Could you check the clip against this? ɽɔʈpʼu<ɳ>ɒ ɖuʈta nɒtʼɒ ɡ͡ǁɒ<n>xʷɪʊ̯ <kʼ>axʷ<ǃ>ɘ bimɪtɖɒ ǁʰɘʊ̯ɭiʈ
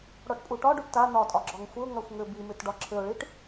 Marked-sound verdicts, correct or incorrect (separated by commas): incorrect, incorrect, incorrect, incorrect